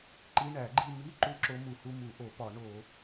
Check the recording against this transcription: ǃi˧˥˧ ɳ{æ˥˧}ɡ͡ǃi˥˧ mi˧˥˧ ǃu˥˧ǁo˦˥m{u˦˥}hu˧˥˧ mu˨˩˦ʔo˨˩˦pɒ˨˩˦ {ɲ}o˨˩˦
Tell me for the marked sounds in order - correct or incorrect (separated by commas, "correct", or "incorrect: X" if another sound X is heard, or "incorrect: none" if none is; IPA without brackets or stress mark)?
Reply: incorrect: æ˨˩˦, incorrect: u˨˩˦, incorrect: ɳ